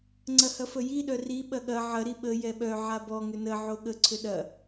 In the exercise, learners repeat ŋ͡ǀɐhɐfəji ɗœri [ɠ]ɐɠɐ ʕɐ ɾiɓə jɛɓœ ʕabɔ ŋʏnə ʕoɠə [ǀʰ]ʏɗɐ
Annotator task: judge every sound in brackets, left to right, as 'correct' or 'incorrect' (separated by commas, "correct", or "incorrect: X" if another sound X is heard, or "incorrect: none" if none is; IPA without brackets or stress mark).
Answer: incorrect: ɓ, correct